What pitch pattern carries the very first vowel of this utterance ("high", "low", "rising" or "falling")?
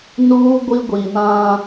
high